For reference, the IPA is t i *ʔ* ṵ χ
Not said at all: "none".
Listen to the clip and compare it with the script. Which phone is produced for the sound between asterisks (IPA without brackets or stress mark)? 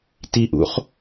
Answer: ʔ